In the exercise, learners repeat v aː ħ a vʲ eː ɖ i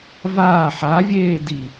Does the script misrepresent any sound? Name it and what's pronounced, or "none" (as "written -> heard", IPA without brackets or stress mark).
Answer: ɖ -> d